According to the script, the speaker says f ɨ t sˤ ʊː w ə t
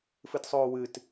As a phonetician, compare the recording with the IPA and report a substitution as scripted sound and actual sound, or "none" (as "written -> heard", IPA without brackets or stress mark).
ə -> ɨ